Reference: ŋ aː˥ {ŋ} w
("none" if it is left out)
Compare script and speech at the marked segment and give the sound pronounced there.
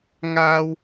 none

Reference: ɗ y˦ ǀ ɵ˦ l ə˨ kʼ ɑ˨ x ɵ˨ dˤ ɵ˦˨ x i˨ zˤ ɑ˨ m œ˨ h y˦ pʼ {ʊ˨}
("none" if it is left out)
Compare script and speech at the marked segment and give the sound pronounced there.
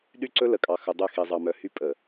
ə˨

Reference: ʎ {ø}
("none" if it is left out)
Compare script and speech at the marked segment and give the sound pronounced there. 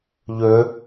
ø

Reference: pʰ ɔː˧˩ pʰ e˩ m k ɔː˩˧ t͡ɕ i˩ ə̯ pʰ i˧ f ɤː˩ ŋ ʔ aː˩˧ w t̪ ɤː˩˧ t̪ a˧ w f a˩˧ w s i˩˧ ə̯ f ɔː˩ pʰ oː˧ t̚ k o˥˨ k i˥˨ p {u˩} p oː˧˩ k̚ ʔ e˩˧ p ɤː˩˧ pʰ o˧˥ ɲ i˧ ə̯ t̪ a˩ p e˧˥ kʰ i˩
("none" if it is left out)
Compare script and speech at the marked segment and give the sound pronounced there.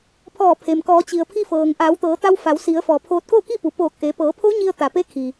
u˩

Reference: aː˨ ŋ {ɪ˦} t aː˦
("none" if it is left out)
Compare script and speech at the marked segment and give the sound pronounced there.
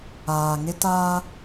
ɪ˦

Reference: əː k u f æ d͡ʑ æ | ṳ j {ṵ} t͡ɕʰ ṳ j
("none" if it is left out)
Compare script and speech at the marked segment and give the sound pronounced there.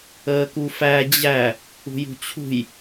ṳ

